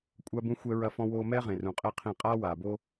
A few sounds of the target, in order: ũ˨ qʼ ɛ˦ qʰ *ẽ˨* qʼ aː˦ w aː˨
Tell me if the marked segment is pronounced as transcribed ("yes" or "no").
no